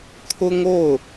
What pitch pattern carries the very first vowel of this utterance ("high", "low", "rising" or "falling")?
high